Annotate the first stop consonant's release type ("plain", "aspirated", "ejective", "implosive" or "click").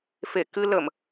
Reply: plain